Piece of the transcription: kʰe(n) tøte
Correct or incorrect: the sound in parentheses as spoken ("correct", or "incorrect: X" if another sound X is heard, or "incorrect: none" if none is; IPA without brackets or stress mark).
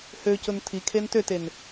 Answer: correct